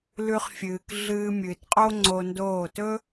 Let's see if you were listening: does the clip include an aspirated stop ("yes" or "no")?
no